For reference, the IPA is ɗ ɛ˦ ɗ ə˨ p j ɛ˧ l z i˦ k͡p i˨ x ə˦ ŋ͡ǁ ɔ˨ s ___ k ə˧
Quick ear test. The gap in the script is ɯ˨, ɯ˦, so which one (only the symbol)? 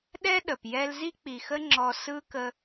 ɯ˦